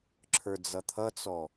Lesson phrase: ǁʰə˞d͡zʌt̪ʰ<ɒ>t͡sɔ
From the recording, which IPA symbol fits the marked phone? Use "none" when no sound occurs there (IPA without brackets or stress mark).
ʌ